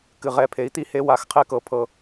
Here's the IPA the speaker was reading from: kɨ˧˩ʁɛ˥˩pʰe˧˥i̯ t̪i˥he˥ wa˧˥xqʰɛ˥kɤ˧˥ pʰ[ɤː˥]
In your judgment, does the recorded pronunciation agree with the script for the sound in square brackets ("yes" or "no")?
no